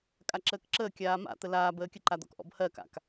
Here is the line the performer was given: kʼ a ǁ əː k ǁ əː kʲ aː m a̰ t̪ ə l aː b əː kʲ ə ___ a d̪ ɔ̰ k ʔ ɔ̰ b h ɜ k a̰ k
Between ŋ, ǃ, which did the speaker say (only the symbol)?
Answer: ǃ